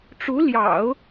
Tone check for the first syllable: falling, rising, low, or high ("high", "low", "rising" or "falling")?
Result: rising